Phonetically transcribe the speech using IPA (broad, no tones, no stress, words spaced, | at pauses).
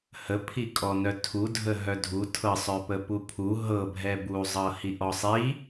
həpʰikʼɔnœ tʰudʱə ɦœdʱu tʰɤsˤœpəpu pʰu ɦɤ bʱɛbu zˤɤhiʔɔsˤi